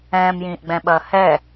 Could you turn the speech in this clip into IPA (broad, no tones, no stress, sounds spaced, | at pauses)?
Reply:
ɛ̃ː m j ĩː ʔ ɡ͡b ɛ̃ ɓ ɐː h ɛ